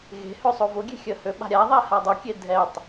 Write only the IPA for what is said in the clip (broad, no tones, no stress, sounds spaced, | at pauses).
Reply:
ɣ e̤ h ø sˤ o v ʊ ɡʲ e̤ xʲ ə h ø ɓ a̤ ɾʲ a ðˤ ɛ h a dˤ ʊ kʲ e dʱ ɛ tˤ